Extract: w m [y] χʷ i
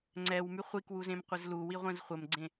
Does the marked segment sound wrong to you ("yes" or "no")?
no